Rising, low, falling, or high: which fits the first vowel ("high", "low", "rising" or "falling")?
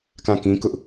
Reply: falling